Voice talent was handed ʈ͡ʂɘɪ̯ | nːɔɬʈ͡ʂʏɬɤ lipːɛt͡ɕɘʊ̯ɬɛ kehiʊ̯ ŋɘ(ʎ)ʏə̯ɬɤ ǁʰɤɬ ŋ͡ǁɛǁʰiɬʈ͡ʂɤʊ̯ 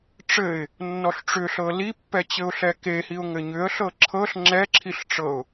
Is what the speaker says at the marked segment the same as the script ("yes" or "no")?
no